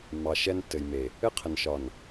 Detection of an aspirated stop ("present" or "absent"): present